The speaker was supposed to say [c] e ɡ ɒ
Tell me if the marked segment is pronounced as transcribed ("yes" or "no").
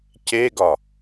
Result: yes